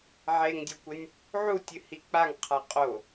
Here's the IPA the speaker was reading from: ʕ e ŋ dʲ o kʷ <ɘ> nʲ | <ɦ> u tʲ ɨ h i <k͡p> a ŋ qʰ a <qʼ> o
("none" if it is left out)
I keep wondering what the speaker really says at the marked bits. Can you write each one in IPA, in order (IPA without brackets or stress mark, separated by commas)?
ɘ, ʕ, k͡p, qʼ